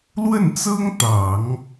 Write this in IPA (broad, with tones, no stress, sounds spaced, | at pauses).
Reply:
l w ə˥˩ n t͡s ɤ˥ ŋ t̪ ɑ˨˩˦ ŋ